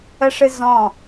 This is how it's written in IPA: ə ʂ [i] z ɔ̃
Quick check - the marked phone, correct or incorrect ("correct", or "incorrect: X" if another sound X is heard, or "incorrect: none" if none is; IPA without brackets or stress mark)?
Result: incorrect: ɨ